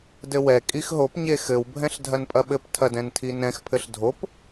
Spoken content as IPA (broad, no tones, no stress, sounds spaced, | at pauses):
d ɘ w ɛ kʼ i x ɦ o p ɲ e x ɘ w bʱ ɛ̃ ɬ dʱ ɐ n pʼ ɐ ɓ ɘ p tʰ ɐ d ɛ̃ n tʰ i n ɛ̃ x pʰ ɘ ɬ dʱ o p